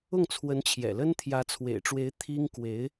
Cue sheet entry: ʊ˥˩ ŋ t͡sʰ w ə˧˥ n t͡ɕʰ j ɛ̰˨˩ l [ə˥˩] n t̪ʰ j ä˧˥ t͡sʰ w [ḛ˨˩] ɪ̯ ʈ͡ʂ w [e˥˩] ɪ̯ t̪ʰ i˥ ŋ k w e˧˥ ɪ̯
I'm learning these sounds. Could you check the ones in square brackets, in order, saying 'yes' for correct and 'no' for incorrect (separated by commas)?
no, yes, no